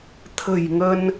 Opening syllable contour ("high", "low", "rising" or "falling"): low